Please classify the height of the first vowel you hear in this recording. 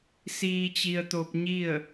high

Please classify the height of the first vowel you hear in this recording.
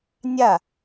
low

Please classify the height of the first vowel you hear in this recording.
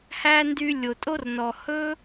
low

